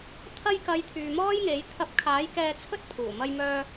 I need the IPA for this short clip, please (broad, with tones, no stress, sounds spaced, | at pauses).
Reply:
t̪ʰ ɐ˧ j k ɐ˨˧ j t̪ʰ yː˨ m ɔː˥ j ŋ e˨˥ j t̪ʰ ɐ˧ p̚ kʰ aː˨˥ j k ɛː˧ t͡sʰ ɵ˥ t̚ pʰ uː˨˩ m ɐ˧ j m œː˧